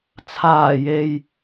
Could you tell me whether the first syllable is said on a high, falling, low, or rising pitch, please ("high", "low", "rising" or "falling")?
low